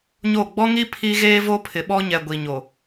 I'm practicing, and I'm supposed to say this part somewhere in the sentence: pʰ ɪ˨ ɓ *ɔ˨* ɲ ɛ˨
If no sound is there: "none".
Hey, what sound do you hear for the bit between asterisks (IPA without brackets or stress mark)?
ɔ˦